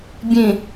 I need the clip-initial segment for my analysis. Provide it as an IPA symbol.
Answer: bʲ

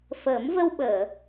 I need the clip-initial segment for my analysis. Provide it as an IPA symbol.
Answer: f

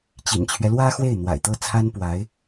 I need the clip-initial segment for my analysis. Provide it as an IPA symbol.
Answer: t͡ɕ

